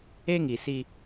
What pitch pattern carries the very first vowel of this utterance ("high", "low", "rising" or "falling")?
high